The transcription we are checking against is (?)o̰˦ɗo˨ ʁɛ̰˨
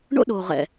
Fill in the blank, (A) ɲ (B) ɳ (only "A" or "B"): B